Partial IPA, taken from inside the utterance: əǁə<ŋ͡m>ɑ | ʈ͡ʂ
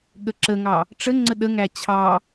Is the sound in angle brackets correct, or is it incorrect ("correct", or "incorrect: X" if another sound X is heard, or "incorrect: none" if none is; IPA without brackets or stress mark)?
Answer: incorrect: ŋ